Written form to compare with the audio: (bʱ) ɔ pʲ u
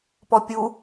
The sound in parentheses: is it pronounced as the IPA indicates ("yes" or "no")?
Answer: no